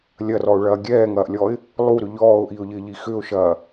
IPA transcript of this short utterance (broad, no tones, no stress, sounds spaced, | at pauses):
lʲ ɐ r ɔ ʊ̯ ɭ ɐː ɡʲ ɛː ŋ ɐː ʔ lʲ ɔː ɪ̯ | lˠ u ɾ ʏ ʎ ɔː ʊ̯ ʔ i ʊ̯ ʎ ɪː ʎ i x ʏ ʊ̯ ʃ ɐː